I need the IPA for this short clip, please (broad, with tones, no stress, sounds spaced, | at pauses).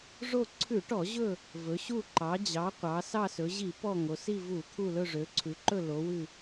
ʐ o˦˨ ǀʰ ʉ˧˩˧ ʈ ɔ˧˩˧ ʑ ɵ˦˨ | v ɵ˩˧ ɕ u˦˨ ǃ ɑ˩˧ d͡ʑ ɑ˩˧ qʷ ɑ˩˧ s ɑ˦˨ s ɵ˩˧ ʑ i˧˩˧ p ɔ˦˨ ŋ o˩˧ s i˦˨ v u˧˩˧ t̪ʰ u˦˨ l ɵ˦˨ ʐ ø˩˧ ǀʰ ʉ˩˧ ǃ ɵ˦˨ l o˩˧ w ʉ˦˨